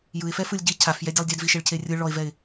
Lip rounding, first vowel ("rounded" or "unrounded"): unrounded